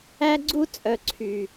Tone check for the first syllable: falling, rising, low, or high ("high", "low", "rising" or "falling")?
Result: high